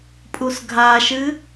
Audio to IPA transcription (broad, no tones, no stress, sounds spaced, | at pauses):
pʼ u s ɡʱ a ʃ ɨ